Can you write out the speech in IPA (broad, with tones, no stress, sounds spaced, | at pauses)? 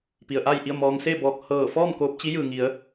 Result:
p i˩ ə̯ ʔ a˥˨ j ʔ i˥˨ ə̯ m ɔː˧ ŋ s e˥˨ b ɔː˧ k̚ h ɤː˧˩ f ɔː˥˨ m k oː˧ p̚ t͡ɕ i˧˥ j ɯː˩ ŋ i˩˧ ə̯